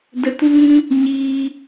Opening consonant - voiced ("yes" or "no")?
yes